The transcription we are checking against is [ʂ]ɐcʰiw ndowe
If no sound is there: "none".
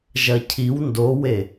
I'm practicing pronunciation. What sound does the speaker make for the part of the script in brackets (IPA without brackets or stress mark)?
ʒ